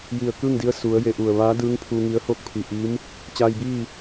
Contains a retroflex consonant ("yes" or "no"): no